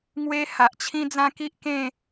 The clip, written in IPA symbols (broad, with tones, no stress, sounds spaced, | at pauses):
ŋ w e˦ h a˨ ʔ t͡ɕʰ ĩ˦ d͡z ã˦ k i˦ ʔ k ẽ˥˧